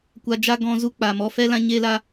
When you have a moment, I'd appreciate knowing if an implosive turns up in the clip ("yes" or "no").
no